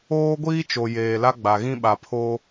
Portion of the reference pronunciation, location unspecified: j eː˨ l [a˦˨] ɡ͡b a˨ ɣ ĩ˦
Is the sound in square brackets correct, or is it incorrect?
incorrect